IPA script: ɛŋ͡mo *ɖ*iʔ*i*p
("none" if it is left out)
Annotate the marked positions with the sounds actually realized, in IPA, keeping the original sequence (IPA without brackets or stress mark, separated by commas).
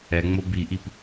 b, i